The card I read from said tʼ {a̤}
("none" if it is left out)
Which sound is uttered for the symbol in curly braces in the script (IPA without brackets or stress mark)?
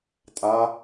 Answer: a